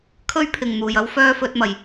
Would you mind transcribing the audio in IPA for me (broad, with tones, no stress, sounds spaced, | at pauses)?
kʰ ɵ˥ ɥ pʰ ɪ˨˩ ŋ n̪ uː˨˩ j ɐ˥ w f œː˥ f ɵ˨˥ t̚ m ɐ˨˩ j